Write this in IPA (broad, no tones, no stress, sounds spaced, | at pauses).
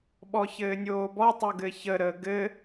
ɓ ɔ ç ɘː nʲ oː b ɔ tˤ u ɡ ɘ ç ə ɾ əː ɡ ɘ